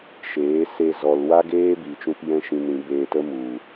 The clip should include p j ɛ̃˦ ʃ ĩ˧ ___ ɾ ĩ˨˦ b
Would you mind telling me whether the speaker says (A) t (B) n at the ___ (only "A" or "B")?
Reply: B